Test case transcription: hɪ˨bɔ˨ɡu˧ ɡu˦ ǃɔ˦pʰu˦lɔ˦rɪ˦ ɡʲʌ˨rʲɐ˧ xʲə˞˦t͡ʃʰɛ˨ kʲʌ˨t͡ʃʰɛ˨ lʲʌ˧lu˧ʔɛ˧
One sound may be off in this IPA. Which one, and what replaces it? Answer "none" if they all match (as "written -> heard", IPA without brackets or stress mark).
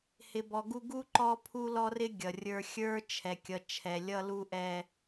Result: ɐ˧ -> ə˞˧